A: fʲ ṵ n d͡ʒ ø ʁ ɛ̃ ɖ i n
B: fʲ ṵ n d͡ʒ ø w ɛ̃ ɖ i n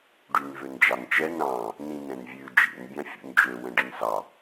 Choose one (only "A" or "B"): B